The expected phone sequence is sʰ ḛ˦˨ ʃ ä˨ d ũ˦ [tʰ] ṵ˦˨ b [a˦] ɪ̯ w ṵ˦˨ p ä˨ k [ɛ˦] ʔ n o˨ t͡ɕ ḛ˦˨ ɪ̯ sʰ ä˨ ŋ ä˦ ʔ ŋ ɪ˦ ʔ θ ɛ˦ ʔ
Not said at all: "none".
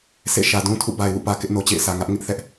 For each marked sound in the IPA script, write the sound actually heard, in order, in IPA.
tʰ, a˨, ɪ˦

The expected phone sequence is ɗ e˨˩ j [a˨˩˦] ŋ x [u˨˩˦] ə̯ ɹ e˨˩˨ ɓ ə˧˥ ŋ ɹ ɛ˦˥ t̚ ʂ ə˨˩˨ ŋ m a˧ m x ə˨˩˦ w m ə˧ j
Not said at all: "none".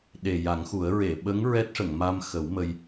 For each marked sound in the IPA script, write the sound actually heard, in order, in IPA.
a˨˩˦, u˨˩˦

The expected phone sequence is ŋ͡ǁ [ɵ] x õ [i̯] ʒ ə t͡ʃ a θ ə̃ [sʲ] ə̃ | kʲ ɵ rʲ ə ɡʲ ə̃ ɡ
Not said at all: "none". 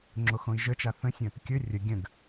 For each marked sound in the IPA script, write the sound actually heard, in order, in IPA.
o, i̯, sʲ

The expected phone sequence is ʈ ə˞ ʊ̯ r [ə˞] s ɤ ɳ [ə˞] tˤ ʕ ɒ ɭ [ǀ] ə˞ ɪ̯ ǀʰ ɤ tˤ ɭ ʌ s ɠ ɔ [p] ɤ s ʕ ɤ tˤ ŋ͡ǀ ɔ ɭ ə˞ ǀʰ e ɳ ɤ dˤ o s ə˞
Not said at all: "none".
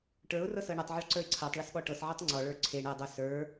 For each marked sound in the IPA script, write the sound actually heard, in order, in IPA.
ɤ, ɤ, ǀ, ʈ

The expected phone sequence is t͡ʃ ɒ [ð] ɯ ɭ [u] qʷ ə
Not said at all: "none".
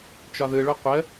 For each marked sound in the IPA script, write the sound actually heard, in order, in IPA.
ð, o

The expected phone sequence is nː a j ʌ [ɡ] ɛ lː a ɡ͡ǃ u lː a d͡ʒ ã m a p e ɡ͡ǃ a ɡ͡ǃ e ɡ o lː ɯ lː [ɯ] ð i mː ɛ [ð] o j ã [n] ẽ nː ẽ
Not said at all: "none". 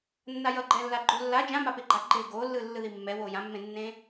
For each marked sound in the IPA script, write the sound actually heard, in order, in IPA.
ɡ͡ǃ, ɯ, w, mː

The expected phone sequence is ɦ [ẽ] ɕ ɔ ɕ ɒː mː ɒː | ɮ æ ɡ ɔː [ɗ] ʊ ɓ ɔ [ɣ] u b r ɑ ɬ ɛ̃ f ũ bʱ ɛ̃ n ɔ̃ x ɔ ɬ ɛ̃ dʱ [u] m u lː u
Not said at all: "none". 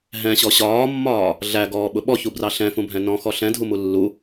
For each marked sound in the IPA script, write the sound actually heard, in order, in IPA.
ɛ̃, ɓ, ç, u

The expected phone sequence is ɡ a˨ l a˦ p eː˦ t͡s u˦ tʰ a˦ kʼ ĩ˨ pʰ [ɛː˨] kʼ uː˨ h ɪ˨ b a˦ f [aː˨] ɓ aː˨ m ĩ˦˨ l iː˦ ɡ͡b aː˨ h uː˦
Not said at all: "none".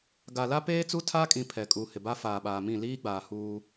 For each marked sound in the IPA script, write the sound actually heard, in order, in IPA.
ɛ˨, aː˨

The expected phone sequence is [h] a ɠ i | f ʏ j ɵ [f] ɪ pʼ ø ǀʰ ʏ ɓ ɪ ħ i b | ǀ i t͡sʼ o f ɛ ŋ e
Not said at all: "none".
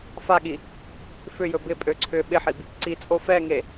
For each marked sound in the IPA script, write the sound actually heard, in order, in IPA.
f, b

